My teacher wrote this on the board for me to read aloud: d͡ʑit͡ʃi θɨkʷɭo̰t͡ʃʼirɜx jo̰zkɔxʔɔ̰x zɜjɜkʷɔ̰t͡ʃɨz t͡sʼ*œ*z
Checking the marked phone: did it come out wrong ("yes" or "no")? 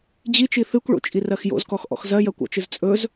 yes